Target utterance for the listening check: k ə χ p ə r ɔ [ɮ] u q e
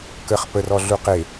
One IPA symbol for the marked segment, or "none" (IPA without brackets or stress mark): ɮ